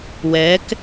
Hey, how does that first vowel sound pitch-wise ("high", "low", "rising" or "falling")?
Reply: rising